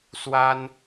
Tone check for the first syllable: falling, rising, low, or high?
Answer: high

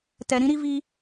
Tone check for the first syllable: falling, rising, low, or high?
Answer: low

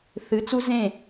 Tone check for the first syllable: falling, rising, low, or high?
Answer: rising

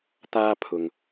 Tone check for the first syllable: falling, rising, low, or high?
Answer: high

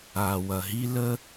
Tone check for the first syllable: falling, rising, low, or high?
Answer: low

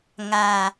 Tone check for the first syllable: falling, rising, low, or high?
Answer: low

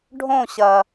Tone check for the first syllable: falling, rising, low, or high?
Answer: falling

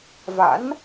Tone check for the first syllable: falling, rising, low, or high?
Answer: rising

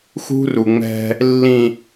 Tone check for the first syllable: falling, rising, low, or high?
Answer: high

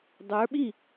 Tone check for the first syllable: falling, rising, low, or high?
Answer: rising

